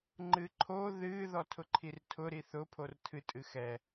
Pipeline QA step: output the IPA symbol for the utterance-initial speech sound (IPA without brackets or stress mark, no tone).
ŋ͡ǃ